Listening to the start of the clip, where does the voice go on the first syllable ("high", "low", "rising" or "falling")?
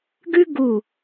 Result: high